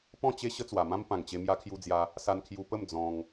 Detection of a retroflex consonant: absent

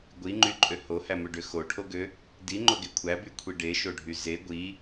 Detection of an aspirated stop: present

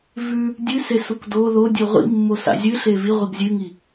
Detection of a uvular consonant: present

